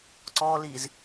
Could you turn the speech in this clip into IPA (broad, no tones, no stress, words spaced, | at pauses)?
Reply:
ǀɔliz